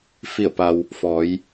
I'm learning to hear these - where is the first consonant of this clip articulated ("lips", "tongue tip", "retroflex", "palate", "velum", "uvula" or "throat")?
lips